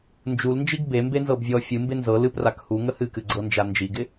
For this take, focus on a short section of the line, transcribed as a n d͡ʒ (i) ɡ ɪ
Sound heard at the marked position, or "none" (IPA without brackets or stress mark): i